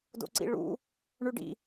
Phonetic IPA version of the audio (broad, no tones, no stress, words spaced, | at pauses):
do̰ǀḭɭṵ | ɳʉɖḭ